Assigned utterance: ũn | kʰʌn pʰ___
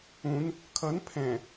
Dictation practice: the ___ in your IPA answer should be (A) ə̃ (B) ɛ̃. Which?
B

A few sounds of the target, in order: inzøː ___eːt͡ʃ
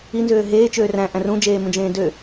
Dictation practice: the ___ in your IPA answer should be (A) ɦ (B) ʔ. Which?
A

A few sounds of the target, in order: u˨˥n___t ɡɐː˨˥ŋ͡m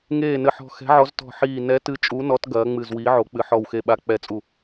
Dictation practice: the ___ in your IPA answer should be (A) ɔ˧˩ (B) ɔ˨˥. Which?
B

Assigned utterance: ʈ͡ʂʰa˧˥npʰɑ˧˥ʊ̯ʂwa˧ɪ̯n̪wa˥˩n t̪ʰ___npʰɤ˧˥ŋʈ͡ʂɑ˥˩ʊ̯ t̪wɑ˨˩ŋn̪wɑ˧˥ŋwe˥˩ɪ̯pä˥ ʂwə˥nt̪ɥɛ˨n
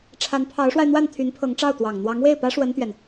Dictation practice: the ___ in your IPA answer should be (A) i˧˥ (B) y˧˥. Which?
B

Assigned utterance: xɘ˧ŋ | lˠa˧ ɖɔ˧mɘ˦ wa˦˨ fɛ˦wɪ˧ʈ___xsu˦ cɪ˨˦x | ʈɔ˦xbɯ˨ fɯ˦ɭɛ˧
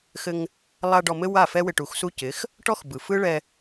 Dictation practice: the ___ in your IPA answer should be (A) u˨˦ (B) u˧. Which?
A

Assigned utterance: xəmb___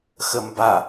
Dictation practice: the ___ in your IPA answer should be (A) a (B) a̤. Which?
A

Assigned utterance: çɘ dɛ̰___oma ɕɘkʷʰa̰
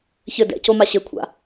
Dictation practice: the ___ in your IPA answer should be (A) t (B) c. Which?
B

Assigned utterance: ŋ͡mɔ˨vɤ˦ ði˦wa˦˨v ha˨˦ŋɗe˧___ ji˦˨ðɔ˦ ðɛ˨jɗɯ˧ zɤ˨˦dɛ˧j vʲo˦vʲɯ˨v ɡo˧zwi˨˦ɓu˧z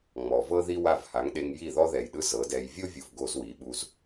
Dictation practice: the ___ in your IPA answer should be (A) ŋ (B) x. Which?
A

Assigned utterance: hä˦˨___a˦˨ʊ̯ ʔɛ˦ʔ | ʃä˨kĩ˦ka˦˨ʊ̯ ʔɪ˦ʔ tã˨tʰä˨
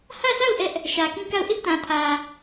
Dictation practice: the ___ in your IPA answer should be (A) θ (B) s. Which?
B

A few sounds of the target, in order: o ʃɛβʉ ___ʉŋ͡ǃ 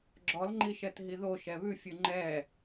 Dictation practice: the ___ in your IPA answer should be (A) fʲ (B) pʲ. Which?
A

